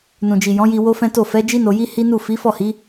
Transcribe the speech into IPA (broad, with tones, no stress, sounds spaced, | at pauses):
n ũ˨ d͡ʒ i˨ j ɔ̃˨˦ j i˧ w o˦ f ɛ̃˦ t o˦˨ f ɛ˨˦ d͡ʒ i˦ n o˧ j i˦ h i˦ n u˦˨ f i˨˦ f ɔ˦˨ h i˨˦